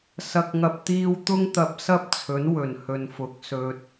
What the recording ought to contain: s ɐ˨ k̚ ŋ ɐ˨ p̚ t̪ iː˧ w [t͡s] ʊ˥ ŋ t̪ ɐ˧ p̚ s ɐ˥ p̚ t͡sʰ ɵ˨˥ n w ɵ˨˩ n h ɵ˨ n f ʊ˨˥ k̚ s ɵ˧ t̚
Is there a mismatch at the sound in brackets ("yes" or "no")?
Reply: yes